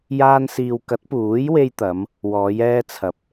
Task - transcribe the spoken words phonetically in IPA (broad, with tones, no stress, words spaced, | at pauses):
jaː˧nsiː˨wkɐ˨˥t̚puː˨˥j we˧jt̪ɐ˨˧m | wɔː˨˧jɛː˧t͡sʰɐ˨p̚